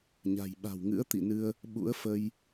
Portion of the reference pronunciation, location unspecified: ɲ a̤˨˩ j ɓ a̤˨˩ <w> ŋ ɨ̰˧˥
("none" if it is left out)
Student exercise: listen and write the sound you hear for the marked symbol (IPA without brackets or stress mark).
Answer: w